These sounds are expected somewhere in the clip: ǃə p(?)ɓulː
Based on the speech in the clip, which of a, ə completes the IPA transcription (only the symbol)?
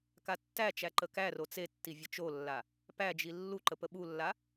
ə